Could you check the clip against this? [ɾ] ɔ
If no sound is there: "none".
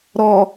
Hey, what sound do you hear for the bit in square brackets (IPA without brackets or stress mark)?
ɾ